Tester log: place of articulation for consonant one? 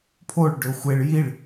labial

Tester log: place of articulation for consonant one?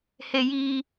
glottal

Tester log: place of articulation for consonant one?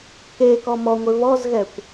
velar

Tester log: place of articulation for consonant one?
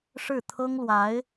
retroflex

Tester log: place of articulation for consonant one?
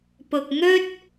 labial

